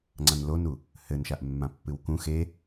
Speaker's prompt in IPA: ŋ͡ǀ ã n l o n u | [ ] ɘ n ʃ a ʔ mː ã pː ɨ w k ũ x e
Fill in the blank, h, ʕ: h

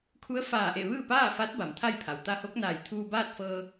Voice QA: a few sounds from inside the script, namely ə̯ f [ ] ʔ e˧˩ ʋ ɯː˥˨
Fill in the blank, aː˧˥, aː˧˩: aː˧˩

